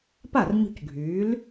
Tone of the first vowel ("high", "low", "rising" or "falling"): falling